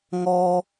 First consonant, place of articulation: velar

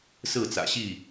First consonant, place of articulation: alveolar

